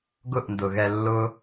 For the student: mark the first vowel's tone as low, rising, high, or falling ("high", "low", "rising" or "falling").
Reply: falling